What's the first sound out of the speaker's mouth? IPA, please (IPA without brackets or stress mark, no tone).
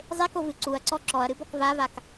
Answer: zˤ